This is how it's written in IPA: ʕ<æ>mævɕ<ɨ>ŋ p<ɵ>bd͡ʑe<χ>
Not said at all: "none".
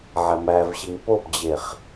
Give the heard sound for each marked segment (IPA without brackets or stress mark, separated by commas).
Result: æ, i, o, χ